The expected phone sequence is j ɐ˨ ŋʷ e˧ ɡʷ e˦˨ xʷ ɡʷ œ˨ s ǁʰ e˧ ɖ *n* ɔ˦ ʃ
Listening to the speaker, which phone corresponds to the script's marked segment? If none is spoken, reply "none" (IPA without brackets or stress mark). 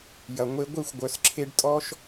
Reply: tʼ